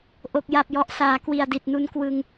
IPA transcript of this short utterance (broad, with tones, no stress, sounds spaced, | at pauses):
ʔ o˨˩ k̚ j a˨˩ p̚ j ɔ˨˩ ʔ s aː˩˦ k w i˨˩ a̯ d i˨˩ t̚ n u˧ n k w ɯ˧ ŋ